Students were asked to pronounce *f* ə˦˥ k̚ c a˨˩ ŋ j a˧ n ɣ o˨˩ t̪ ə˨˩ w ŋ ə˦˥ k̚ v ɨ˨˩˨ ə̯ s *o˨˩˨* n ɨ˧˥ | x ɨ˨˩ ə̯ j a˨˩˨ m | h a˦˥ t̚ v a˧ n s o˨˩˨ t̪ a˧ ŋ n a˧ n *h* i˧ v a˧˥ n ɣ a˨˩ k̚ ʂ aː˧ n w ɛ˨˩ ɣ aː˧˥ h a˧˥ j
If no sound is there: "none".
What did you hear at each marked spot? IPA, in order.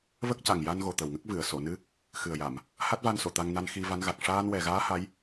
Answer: v, o˨˩˨, x

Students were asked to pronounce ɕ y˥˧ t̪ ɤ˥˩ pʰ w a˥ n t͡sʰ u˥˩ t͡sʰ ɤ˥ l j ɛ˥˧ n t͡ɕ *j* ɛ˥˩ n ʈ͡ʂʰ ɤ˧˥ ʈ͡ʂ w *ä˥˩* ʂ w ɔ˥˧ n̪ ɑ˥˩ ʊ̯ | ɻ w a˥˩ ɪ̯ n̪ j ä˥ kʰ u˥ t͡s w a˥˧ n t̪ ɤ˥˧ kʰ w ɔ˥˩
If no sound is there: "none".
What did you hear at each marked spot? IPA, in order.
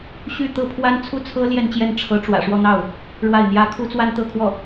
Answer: j, ä̰˨˩

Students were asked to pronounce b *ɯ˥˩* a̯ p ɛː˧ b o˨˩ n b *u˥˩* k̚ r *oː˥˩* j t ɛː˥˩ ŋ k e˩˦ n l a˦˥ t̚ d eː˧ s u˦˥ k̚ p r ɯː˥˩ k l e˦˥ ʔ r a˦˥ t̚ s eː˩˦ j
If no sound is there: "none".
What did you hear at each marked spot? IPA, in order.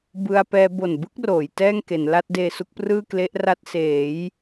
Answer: ɯ˧, ɯ˥˩, oː˩˦

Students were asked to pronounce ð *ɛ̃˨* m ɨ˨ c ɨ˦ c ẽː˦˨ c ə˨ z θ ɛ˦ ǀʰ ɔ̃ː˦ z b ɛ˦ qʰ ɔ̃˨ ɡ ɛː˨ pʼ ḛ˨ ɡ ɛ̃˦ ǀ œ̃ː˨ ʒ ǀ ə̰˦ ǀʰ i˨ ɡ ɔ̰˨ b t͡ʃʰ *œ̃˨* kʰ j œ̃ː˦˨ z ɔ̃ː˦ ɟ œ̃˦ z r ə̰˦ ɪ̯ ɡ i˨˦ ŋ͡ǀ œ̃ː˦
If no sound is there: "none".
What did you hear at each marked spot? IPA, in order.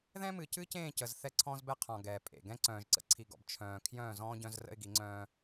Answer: ɛ̃˦, œ̃ː˨

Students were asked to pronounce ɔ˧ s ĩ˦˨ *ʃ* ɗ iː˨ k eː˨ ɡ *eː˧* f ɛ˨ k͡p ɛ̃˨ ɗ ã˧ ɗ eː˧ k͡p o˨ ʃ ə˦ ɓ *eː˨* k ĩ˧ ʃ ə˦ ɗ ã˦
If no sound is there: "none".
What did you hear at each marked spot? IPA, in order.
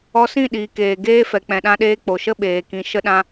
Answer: none, eː˦, eː˨

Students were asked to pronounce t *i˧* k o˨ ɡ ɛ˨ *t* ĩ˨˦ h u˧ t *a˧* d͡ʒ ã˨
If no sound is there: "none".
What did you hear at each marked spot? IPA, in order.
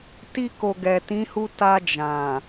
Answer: i˧, t, a˧

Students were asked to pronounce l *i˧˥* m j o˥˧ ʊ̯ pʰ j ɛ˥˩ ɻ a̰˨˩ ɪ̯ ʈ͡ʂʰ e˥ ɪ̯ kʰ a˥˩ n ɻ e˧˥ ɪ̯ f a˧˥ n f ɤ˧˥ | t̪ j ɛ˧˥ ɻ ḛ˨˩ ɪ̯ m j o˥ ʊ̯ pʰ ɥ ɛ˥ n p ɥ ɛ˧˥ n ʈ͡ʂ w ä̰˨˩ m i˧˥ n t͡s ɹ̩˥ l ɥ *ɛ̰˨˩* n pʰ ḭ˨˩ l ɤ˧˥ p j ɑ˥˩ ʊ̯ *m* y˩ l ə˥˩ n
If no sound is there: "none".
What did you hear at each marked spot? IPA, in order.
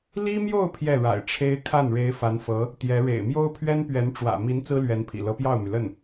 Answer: i˥, ɛ˧˥, m

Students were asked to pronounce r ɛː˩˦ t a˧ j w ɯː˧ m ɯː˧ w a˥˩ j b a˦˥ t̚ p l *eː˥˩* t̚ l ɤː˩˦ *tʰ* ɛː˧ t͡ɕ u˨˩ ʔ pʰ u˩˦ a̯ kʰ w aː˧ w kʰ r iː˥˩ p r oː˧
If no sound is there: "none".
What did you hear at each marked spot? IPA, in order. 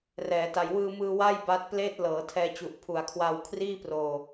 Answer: eː˥˩, tʰ

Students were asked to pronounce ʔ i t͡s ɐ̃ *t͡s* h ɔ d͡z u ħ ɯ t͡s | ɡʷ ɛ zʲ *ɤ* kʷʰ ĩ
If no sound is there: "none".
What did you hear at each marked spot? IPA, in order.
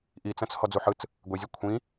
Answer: t͡s, ɤ

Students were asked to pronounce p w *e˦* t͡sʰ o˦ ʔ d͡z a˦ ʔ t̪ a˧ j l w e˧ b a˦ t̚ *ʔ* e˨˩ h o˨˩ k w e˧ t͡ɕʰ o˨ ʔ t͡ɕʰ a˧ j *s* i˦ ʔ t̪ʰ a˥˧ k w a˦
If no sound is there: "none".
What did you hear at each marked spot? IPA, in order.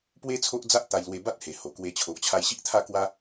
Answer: e˦, h, ɕ

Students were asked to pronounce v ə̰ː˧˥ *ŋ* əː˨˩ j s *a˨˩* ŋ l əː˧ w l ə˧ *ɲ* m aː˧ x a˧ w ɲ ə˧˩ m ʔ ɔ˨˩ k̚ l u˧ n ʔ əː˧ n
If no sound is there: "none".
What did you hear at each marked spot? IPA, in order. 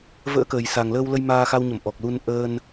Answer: k, a˨˩, j

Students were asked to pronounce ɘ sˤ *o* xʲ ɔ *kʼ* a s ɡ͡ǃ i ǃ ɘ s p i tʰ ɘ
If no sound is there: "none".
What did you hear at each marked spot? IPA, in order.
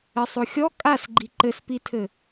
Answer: o, kʼ

